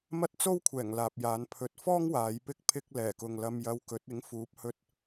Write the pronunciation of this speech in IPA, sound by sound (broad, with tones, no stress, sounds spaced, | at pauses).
m ɐ˥ t̚ t͡s o˥ w kʷʰ ɛː˨˩ ŋ l aː˨ p̚ j aː˨˧ n pʰ ɵ˨ t̚ f ɔː˥ ŋ w aː˨˧ j p ɪ˥ k̚ pʰ ɪ˥ k̚ l ɛː˨˩ k ʊ˨ ŋ l ɐ˧ m j ɐ˧ w k ɵ˨˥ t̚ ɪ˨˥ ŋ f uː˨˥ p̚ h ɵ˧ t̚